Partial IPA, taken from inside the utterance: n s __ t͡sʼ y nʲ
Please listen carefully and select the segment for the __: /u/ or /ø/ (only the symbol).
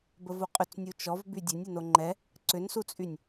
u